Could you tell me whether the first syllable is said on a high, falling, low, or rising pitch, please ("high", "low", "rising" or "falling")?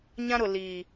high